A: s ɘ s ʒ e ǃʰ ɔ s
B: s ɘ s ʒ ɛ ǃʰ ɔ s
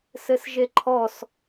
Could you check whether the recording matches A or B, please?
A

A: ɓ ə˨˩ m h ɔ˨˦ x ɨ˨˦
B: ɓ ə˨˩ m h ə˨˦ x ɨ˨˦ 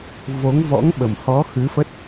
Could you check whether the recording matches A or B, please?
A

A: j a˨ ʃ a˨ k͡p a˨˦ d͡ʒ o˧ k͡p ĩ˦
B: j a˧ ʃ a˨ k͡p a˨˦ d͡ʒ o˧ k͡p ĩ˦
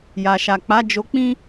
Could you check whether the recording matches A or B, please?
A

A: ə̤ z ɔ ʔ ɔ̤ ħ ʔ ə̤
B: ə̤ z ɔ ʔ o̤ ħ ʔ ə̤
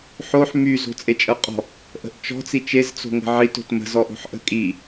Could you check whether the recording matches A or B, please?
B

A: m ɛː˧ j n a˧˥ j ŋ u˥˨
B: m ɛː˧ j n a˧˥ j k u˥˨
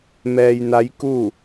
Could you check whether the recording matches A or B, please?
B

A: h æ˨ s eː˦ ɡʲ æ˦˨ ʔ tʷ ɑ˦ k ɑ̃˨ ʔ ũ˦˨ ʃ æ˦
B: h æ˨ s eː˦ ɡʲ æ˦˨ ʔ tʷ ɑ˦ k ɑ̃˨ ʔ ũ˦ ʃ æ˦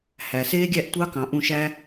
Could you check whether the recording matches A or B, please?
A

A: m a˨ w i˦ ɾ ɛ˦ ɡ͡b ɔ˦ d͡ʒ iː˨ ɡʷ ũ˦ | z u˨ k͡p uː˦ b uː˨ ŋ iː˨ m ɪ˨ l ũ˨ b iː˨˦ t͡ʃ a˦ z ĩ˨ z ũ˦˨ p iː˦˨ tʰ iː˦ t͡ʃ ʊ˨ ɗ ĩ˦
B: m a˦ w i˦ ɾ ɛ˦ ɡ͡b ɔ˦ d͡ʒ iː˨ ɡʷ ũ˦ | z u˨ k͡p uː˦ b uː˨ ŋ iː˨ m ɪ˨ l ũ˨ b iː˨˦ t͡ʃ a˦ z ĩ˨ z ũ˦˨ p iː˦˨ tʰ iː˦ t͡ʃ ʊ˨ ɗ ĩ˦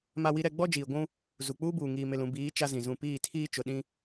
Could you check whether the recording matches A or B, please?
B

